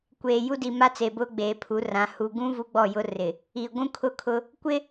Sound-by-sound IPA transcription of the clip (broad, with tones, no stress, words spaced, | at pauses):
kʷeː˨ ju˦di˨ ma˦t͡se˨ bʊ˦ ɡ͡beː˨pʰu˨˦rã˨˦ hu˨ɡũ˦ vu˦ɡ͡bɔ˦˨jʊ˦ rɪ˨ | i˨ ɡʷũ˦kʰʊ˦kʰʊ˦ | kʷɪ˦